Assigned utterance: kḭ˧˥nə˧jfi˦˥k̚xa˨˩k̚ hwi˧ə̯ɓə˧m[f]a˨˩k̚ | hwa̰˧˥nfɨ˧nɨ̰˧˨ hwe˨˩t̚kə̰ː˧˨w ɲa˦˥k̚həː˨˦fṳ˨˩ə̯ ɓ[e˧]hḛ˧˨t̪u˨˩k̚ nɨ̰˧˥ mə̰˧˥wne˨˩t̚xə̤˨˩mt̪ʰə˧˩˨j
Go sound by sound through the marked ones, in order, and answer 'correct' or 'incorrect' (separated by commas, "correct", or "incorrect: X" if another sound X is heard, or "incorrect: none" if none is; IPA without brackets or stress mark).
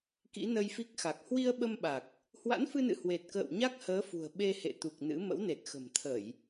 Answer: incorrect: ɓ, correct